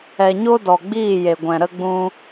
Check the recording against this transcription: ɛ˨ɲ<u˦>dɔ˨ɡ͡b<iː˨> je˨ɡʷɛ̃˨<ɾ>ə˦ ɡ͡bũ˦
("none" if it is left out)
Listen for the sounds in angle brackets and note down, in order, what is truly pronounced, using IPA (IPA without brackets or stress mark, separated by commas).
o˦, iː˦˨, ɾ